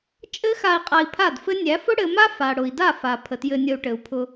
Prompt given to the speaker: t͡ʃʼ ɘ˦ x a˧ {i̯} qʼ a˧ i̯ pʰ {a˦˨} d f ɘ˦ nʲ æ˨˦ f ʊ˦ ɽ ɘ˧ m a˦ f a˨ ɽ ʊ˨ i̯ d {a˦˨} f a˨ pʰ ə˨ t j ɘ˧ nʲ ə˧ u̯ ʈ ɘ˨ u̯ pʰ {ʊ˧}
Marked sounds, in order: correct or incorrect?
correct, correct, correct, correct

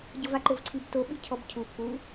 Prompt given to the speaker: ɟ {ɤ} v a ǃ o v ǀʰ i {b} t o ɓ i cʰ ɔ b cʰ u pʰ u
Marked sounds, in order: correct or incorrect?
correct, correct

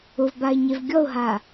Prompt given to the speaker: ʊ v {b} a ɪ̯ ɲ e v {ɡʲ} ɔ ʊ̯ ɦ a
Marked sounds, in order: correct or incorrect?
correct, correct

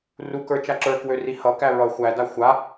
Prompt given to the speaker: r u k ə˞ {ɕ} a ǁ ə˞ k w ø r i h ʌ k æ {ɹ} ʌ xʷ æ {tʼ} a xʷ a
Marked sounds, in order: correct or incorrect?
incorrect: t͡ʃ, correct, incorrect: d

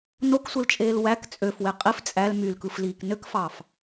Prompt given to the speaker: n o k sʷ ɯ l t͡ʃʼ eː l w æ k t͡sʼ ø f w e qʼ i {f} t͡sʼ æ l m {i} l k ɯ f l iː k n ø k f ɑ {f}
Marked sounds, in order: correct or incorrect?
correct, incorrect: y, correct

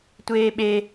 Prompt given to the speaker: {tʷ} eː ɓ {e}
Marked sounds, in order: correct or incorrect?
correct, correct

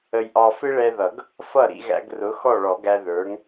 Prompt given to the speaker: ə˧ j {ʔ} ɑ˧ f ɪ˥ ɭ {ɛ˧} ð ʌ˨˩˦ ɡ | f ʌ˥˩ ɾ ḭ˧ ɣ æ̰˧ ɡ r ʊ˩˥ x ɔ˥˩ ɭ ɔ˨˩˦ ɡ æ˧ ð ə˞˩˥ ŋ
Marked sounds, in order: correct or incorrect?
correct, correct

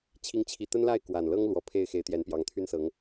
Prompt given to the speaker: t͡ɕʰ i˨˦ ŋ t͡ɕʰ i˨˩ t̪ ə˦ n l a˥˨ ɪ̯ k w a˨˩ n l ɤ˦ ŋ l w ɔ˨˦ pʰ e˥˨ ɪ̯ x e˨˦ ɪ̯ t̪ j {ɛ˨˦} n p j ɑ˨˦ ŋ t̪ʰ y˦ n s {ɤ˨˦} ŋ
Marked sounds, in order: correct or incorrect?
correct, correct

